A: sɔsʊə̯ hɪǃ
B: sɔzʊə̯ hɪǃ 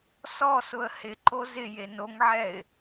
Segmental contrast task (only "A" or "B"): A